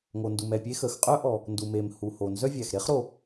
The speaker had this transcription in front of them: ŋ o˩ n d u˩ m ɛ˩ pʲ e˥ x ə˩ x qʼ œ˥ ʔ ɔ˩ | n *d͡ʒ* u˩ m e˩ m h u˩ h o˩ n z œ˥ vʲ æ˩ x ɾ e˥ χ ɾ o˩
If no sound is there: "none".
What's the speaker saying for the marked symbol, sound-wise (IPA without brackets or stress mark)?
d